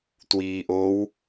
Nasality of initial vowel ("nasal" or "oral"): oral